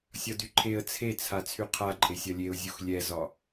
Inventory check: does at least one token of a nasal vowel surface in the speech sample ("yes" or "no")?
no